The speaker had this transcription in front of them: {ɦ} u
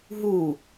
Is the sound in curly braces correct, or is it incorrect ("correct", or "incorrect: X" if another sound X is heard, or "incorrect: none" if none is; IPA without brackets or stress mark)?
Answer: correct